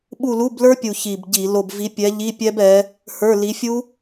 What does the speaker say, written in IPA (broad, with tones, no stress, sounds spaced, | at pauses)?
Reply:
ɓ u˦˨ l u˧˥˧ b l ə˞˦˥ pʲ u˨˩ ç i˨˩ b ɟ i˧˩˧ l o˦˨ b v i˨˥ pʲ ɛ˨˥ ʎ i˧˥˧ pʲ ɛ˦˥ b ɛ˨˥ | h ə˞˧˥˧ l i˨˥ fʲ u˦˥